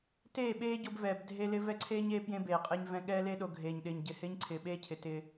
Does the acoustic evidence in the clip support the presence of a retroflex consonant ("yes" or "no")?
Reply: no